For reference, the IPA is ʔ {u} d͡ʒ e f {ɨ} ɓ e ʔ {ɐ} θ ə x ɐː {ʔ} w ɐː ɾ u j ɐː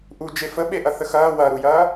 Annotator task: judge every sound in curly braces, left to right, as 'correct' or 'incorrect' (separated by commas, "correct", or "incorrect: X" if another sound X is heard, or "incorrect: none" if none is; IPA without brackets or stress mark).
correct, incorrect: ə, correct, incorrect: none